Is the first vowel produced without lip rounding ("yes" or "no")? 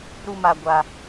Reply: no